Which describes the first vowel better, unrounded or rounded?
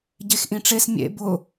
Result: unrounded